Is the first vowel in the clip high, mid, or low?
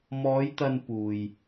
mid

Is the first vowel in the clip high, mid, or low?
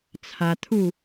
low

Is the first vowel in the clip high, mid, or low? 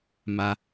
low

